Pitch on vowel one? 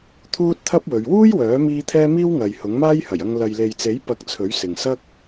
high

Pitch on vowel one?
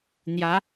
rising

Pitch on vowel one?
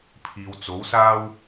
low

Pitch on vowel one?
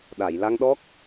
low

